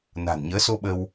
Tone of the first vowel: low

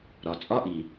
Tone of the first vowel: low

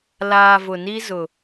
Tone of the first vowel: low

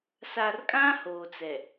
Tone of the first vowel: low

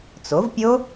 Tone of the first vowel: rising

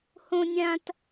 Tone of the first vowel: high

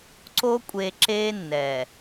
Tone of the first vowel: high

